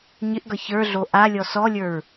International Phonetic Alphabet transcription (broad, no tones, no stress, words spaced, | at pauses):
ɲɪʔɡʌ çə˞ɮo ʔalʲɔ sɔlʲə˞ɹ